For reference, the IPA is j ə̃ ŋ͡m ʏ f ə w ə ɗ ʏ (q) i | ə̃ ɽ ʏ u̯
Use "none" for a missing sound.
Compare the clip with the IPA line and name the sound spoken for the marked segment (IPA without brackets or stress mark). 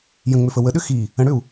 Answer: x